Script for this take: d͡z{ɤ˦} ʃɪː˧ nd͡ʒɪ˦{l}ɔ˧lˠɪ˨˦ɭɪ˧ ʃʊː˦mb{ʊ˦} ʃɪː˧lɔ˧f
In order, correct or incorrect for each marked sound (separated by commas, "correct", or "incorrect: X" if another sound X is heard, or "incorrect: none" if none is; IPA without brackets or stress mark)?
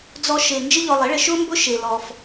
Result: incorrect: ɔ˦, incorrect: ʎ, correct